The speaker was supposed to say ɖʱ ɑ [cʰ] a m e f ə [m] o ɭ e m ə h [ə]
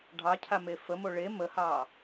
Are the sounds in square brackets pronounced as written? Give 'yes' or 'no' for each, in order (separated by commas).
yes, yes, no